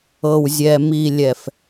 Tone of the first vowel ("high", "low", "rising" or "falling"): low